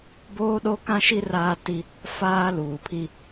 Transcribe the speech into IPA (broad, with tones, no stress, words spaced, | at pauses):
boː˦ɗo˦kã˦ʃi˦ raː˦ ti˦ | faː˦ luː˨pʰi˦